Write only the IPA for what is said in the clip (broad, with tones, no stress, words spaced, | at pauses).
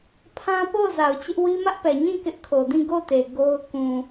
pʰã˦po˦˨ʊ̯ za˨ʊ̯t͡ɕɪ˦ʔ wi˦mä˦ʔpɛ˨ ɲĩ˦˨ kɪ˦ʔkʰo˨ dĩ˦˨ɡo˦˨te˨ ɡo˦ʊ̯ kũ˨